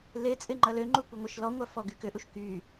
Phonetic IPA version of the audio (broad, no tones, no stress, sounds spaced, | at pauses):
l e t͡sʼ ɪ ŋ͡ǃ ɐ l ø ŋ͡ǃ u kʷ ɪ ŋʷ ɐ ʃ l ɔ ŋʷ a f ɔ ɡ y k ʏ ʔ u ʃ k y